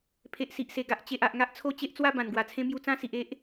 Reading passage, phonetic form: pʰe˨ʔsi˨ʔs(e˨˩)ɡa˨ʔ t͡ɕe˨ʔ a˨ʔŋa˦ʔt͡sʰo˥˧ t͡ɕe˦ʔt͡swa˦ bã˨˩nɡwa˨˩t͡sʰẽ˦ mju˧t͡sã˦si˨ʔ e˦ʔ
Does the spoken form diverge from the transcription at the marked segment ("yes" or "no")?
no